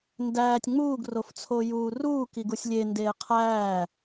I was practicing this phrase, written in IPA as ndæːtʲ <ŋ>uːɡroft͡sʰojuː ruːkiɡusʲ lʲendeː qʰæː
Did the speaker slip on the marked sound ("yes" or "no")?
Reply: yes